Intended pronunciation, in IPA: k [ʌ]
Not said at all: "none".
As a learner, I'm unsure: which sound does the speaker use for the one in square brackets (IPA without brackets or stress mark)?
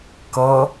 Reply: ʌ